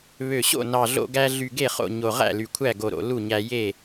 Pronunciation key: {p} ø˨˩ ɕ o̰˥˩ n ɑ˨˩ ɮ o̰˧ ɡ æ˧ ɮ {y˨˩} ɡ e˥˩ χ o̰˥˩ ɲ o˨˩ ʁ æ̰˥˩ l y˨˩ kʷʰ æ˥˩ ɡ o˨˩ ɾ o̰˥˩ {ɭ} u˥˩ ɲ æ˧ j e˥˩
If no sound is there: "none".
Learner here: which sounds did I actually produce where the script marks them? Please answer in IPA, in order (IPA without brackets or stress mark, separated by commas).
β, y˨˩, l